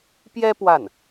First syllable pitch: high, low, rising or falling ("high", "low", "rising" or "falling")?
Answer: high